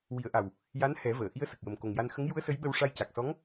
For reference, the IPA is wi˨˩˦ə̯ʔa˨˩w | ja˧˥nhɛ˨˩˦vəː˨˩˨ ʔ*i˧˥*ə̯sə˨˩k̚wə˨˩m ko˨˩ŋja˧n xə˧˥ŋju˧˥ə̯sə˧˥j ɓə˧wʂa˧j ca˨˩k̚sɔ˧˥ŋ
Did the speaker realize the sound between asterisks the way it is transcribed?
yes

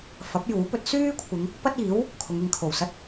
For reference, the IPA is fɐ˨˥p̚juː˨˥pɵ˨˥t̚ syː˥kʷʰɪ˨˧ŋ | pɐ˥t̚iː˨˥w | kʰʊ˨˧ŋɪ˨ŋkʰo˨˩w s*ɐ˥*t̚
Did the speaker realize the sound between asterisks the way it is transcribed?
yes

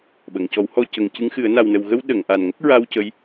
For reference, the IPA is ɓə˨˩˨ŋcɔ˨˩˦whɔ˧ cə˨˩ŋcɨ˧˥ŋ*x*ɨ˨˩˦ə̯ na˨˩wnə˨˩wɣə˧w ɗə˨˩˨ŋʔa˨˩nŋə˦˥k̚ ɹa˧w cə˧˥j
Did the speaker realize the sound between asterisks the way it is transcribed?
yes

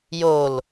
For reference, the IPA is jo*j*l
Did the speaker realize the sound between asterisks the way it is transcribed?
no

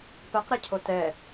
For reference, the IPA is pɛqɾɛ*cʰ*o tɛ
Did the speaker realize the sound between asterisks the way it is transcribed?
yes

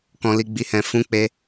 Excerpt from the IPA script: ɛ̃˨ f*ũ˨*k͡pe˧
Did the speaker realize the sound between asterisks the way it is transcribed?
no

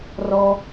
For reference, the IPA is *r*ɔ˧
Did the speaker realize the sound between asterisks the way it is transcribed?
yes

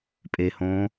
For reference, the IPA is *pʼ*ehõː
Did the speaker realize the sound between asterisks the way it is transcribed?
yes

